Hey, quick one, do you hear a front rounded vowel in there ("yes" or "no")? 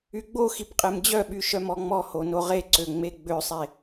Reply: yes